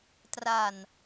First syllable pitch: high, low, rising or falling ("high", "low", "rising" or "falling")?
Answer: low